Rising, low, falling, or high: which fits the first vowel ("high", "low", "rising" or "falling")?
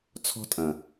high